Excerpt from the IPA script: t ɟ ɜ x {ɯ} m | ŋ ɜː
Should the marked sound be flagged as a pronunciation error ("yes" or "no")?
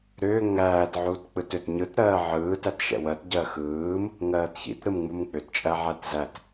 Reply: yes